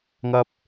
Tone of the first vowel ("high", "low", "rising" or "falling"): high